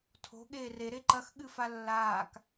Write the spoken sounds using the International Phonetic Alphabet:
tʰo̤ ɠeːre ɾeǃɐxɠɨ falːaːk

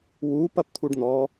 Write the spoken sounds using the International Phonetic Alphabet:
wu pɐpt̪ʰuɖn̪ɔ

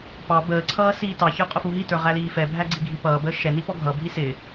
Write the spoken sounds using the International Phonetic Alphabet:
pɑ bəːǀʰʌː siːtɑçə˞ qʼʊfuɦitə˞ ʁæliːfɛbʱæ ɡ͡ǀiɡʱipʌːbəː ʃɛni pɔɡʱʌbʱi sɪ

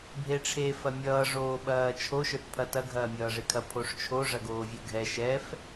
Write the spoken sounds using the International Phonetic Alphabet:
bʱeʈ͡ʂʰe fɐmʲʌː ʐoːɓɐːt͡ʃʰo ʃə˞tpʰɐtɐ ɡʱɐːmʲʌːʐekʰɐ pʰoʂt͡ʃʰo ʐɐɡoːvʲə˞ɡʱɛ ʃɛf

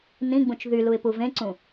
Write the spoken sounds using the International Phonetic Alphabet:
nĩɡ͡bũt͡ʃ ðyluɪ̯pu vẽǀũ

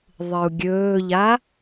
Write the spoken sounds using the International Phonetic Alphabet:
ðˤɨu̯ɡʲɵːʎa

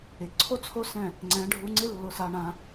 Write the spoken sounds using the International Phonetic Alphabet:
ɪ˨ǀʰo˦t͡sʰo˦sɛ̃˦˨ | ŋ͡ǀɛ̃˨˦ɖʱu˧ŋ͡ǀɪ˦ lːʊ˧sa˧ɳã˧

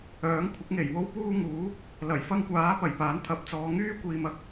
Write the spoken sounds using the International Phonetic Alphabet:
œː˨˥ŋkʷʰɪ˨˥k̚ŋe˨˩j wo˥wpuː˥ŋuː˨˥ | lɐ˨˩j fɐ˥ŋkʷaː˨˥pɐ˨˩j paː˨˥nt̪ʰɐ˨˥p̚t͡sɔː˨˧ ŋyː˥kʷiː˨mɐ˧k̚

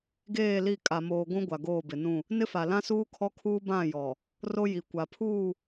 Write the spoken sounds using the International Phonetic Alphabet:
ɡeː˦˨li˦˨ kʼa˨moː˨ ɡʷũ˦ ɡʷa˨ɡoː˦˨bɪ˨nũ˦˨ | nɪ˦fa˨ lã˦suː˦kʰɔ˦kʰuː˦ bã˦˨jɔ˨ | ro˦ji˨ kʷa˨pʰuː˦˨

